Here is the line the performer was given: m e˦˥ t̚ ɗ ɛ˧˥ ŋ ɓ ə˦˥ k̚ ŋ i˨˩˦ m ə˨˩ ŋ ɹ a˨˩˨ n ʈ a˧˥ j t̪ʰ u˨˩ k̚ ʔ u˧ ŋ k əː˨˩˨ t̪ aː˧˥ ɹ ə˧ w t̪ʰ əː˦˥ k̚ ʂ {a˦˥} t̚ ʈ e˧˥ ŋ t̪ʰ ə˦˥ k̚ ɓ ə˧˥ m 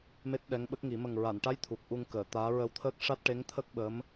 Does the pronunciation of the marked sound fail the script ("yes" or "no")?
no